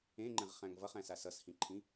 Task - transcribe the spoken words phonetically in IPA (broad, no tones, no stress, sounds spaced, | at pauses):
ẽ ŋ͡ǃ ɛ̃ ʁ χ æ̃ ŋ v ʌ χ æ̃ s a s ʌ s h ĩ ǃʰ ĩ